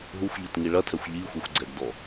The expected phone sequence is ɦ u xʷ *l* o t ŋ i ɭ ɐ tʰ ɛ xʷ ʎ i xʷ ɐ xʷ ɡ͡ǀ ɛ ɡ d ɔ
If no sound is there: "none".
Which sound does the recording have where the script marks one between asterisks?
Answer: ʎ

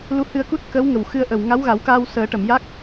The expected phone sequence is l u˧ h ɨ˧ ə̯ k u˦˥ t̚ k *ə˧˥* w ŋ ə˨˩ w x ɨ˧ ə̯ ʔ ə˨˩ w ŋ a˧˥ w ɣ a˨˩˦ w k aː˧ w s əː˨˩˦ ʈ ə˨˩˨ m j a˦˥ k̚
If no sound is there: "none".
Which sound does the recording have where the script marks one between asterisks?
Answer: ə˧˥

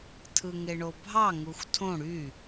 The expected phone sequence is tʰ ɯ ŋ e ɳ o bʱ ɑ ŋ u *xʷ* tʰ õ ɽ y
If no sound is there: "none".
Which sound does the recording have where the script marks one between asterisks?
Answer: xʷ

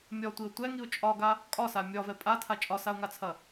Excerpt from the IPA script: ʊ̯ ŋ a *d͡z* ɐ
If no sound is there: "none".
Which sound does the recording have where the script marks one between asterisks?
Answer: t͡sʰ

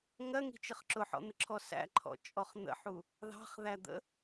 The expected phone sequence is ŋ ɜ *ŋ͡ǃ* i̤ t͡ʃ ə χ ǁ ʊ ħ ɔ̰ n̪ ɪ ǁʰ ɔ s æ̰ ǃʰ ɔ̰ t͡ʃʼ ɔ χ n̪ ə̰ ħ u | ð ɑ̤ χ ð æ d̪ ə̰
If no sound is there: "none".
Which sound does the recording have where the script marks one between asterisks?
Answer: ŋ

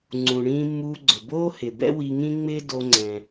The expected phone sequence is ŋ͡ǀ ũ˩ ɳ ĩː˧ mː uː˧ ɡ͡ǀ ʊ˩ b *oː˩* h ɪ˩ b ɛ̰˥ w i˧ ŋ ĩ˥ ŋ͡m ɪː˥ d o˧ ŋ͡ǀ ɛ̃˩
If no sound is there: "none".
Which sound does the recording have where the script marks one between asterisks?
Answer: oː˥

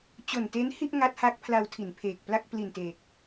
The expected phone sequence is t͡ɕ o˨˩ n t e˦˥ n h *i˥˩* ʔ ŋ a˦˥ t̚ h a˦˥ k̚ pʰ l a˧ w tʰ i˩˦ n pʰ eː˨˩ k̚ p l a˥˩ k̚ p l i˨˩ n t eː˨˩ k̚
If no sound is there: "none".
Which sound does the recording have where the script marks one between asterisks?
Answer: i˥˩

